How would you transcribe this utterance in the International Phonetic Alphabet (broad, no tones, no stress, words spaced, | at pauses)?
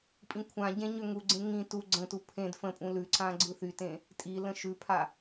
pʼĩkʷʰãɟẽ ɲøŋuɡ͡ǀẽ ŋĩ tu ɡ͡ǀə̃tu pʰẽd fə̃pʼũ lʉǀã ɡ͡ǀɯθytẽ | tʼilə̃ ʃʉpʰa